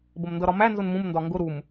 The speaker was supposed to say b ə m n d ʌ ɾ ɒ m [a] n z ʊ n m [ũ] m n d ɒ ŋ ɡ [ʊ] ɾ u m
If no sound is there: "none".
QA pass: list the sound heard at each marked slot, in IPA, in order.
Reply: æ, ũ, ʊ

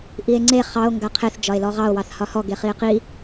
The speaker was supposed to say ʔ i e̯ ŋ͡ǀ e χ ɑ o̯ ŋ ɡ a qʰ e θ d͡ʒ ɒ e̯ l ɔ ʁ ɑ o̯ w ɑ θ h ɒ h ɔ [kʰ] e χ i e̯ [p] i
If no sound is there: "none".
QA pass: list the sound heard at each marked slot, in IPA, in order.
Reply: ɡ, q

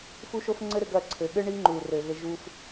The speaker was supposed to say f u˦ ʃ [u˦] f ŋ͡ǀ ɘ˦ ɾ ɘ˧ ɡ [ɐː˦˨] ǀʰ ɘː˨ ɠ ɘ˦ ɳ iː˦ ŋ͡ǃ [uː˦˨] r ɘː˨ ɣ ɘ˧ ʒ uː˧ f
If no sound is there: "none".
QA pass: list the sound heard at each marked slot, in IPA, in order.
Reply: o˦, ɐː˦˨, uː˨

